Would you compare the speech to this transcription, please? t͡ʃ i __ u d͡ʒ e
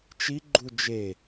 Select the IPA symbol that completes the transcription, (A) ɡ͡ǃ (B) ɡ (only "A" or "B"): A